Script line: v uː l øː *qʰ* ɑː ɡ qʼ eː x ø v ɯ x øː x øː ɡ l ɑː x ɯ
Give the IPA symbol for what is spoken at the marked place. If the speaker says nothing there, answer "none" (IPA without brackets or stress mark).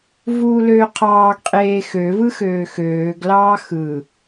qʰ